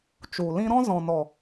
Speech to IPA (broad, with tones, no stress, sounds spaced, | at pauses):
t͡ʃ u˨ l ĩ˦ ɾ ɔ̃˦ z ɔ̃˨ n ɔ˨